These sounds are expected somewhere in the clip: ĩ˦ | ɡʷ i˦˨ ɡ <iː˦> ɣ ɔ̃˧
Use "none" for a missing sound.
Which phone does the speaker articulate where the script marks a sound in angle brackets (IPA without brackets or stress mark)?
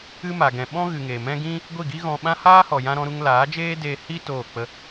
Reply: i˦